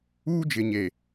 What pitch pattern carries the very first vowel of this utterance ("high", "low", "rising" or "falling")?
high